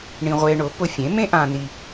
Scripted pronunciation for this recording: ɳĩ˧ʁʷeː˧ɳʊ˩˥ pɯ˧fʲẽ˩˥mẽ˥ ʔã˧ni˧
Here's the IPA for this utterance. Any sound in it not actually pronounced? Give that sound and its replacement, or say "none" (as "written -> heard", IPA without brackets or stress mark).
ɯ˧ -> ʊ˧